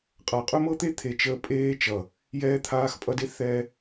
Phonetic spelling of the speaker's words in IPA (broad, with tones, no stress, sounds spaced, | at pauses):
qʼ a˨ qʼ ɵ˦ m ɤ˦ t̪ e˦ t̪ʰ e˨ t͡ʃ əː˧ pʼ eː˧ t͡ʃ ʌ˨ | j ɛː˧ t̪ʰ aː˧ x pʼ ʌ˧ d e˦ θ ɛ˧